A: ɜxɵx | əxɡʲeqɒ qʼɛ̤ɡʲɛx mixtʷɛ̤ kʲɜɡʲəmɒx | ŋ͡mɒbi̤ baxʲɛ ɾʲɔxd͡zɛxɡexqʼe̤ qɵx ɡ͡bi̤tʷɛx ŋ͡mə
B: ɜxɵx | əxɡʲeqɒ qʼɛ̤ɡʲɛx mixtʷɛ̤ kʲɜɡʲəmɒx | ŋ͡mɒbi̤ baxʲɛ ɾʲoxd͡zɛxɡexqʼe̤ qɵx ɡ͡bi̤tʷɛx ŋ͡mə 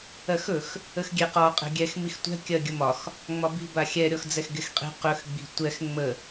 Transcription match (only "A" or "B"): A